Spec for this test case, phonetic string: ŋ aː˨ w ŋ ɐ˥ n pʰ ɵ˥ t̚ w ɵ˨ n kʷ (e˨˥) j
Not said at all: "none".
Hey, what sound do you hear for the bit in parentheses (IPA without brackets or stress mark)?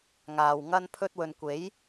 e˨˥